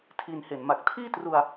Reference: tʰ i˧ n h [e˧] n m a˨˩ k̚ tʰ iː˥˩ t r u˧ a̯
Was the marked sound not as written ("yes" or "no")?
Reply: yes